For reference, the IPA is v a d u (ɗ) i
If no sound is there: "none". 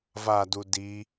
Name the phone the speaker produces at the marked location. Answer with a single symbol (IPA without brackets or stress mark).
d